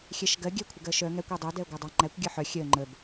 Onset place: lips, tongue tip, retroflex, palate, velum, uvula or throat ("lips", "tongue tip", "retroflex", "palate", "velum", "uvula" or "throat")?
velum